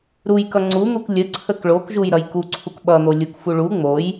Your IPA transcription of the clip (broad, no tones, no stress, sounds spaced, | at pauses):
ɾ u j k ʌ ŋ͡ǀ u n̪ u k lʲ ə ǀʰ ə k ɭ o k ʒ u j ɾ ʌ j k u ǀʰ u k ɓ ʌ n̪ o lʲ u k f u ɭ u ŋ͡m o j